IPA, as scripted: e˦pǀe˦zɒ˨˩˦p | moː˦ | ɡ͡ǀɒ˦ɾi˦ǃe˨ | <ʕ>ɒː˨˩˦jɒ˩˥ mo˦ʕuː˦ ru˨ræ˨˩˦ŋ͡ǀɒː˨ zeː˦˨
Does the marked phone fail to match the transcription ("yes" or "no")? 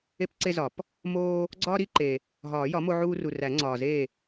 yes